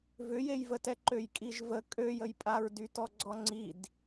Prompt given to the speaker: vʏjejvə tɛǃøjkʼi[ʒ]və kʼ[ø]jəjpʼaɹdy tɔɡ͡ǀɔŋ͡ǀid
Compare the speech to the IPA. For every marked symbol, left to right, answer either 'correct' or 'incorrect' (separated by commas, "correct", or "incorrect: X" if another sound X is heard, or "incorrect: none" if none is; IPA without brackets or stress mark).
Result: correct, correct